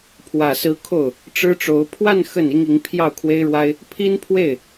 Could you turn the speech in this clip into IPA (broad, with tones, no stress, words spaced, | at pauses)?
pʰwä˨˩sɹ̩˧˥ kʰo˥˩ʊ̯ | ʈ͡ʂɻ̩˥ʈ͡ʂo˧˥ʊ̯ pʰwa˥˧n xə˥˩ni˥ŋ i˧˥ŋ pʰjɑ˥˩ʊ̯kʰwe˥ɪ̯ɻwa˥ɪ̯ | pʰi˥npʰwe˥˩ɪ̯